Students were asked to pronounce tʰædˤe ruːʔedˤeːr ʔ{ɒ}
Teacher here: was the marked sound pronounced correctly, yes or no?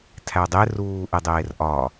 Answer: yes